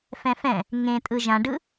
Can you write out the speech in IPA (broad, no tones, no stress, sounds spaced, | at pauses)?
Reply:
f ɛ̃ f ɛ̃ | ŋ ẽ tʼ ɯ ʒ ã ɖ ɯ